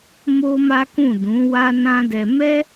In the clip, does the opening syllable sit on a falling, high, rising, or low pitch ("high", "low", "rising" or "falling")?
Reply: high